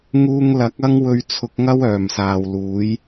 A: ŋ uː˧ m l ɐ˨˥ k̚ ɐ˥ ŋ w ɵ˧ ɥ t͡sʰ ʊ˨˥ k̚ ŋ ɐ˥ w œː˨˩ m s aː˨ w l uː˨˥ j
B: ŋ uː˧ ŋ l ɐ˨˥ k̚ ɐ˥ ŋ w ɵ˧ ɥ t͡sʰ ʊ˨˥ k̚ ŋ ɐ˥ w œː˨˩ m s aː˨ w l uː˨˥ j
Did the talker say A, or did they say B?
B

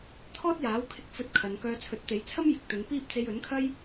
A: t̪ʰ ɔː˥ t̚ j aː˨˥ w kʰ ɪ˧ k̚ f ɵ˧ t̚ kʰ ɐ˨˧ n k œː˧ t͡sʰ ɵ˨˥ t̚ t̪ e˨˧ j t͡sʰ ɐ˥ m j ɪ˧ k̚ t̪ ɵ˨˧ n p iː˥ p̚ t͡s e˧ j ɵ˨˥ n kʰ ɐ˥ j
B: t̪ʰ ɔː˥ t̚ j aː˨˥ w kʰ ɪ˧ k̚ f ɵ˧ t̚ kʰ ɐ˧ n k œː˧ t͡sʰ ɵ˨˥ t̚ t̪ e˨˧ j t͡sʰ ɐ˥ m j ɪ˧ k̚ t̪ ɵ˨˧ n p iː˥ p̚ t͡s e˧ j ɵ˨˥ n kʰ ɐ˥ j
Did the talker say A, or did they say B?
A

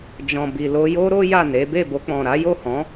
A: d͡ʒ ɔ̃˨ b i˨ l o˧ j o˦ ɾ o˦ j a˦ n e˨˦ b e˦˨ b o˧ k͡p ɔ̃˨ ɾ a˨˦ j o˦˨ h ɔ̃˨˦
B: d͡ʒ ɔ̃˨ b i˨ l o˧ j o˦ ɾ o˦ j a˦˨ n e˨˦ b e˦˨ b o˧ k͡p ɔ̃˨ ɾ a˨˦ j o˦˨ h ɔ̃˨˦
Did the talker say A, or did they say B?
B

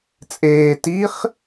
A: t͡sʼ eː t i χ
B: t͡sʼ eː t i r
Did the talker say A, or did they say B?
A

